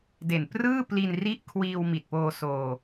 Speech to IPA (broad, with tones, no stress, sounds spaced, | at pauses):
d e˨˩ n p r ɯː˥˩ p l i˧ n r i˦˥ ʔ kʰ w iː˧ w m i˨˩ t̚ p oː˧ s oː˧